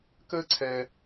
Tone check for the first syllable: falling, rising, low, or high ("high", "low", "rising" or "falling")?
high